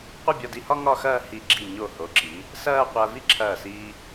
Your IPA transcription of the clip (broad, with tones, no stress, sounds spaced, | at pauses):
qʷ ɐ˥˧ bʲ ɒ˧ d i˧ h ɒ˥ ŋ ɒ˥˧ x ɐː˥˧ h i˧˩ ɡ͡ǁ i˧˩ ɲ o˧˩ h o˩˧ ǁ i˩˧ | s ɐː˥˧ qʷ ɐː˧ v i˥ ǁʰ ɐː˧˩ s iː˧